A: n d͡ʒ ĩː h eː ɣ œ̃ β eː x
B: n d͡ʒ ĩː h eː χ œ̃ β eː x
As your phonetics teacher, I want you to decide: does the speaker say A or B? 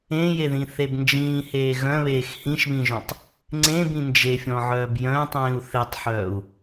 A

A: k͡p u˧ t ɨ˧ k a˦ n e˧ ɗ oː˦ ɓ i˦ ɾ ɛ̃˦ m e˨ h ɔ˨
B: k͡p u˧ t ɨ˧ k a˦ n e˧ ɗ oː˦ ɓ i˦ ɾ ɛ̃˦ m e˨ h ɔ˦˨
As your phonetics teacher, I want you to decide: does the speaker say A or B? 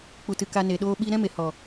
A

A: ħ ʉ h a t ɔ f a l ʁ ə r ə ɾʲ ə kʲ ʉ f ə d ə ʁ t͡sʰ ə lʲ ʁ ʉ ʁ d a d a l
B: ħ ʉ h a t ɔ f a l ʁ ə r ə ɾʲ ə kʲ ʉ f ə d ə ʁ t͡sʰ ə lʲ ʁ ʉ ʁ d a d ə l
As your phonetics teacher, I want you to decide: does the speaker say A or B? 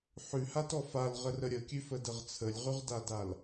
A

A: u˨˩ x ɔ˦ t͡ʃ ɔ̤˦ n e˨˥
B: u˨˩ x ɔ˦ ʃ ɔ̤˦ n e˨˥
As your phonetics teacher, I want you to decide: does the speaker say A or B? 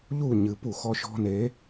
B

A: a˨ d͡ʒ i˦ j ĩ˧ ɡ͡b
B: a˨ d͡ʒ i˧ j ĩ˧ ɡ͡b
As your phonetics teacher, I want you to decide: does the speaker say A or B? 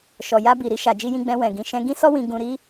B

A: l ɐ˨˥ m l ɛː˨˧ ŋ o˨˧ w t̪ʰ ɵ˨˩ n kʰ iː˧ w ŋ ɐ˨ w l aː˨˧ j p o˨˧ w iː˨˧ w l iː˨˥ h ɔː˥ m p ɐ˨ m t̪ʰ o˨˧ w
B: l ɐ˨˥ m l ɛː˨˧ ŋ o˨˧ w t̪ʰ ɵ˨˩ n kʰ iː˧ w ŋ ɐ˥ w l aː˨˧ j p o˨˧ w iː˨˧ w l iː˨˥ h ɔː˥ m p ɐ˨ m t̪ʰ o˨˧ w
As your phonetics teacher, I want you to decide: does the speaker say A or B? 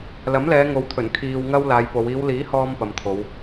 B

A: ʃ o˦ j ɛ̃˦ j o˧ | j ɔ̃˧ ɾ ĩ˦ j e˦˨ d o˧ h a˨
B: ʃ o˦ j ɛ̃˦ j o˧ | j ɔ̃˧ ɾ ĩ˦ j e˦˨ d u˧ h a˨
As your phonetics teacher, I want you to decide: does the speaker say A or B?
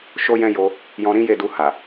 B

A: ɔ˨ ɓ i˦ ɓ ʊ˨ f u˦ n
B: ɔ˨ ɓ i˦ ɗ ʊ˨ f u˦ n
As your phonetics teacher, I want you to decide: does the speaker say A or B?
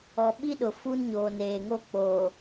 B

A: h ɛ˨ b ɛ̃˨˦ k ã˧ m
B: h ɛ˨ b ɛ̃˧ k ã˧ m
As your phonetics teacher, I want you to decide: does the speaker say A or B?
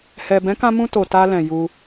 A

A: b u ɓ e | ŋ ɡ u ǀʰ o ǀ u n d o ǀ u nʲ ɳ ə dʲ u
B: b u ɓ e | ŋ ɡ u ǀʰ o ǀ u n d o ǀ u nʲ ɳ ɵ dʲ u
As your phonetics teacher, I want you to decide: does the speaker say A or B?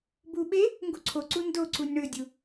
B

